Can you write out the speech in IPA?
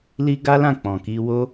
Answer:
li˦ ɡa˦lã˦˨ k͡pɔ̃˨ki˧wo˦

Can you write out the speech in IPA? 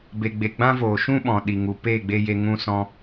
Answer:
be˨ɡ͡be˨ɡ͡bã˦voː˨ ʃũ˦ɓɔ̃˨ ɗi˨ŋu˨ peː˦˨ɡ͡be˧je˧ ŋũ˧sɔ̃˧

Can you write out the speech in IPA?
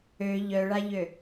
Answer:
ø ʎœɭaʎø

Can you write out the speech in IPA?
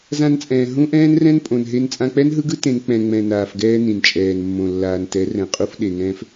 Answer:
zã˧nt͡sʼɛ̃ː˨ ɦũ˦ʔɛ̃ː˦nrɛ̃˦n pʼõ˨nɦe˧n t͡sʼã˧k͡pɛ˦nɦɯ˦ɡɯ˦ tẽ˧n k͡pɛ̃˨ŋ͡mɛ̃˨ naː˨fɡɛː˧ nĩ˨nt͡ʃʼɛː˨nmːõ˨ lːaː˨ntɛ˨˦ rɛ̃˨qʼu˧f ɗe˨ ŋɛ̃ː˧f

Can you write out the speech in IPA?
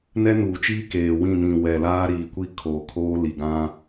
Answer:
nɛ˦nuː˨t͡ʃiː˦ keː˨wĩ˦˨ nĩ˨ wɛ˨ laː˦ɾiː˨kʷi˦ kʰoː˨ kʰoː˦li˨ɡã˦

